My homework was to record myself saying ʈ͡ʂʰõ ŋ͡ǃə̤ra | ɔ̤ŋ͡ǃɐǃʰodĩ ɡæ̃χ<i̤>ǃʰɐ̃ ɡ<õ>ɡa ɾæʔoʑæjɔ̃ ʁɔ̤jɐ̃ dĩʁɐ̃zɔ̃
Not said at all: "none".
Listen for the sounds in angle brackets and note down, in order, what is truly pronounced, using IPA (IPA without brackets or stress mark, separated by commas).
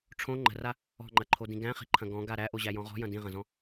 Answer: i̤, ɔ̃